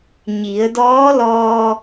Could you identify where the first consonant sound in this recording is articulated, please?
palatal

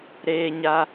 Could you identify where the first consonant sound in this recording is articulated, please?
alveolar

